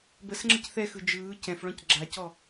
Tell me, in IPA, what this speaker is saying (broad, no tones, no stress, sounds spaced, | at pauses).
b ə s ŋ͡ǁ ə c θ ɛ x ɯ d͡ʒ ɯː c ɛ̃ f ɭ ɔ̃ c ɡ͡ǁ a c ɔ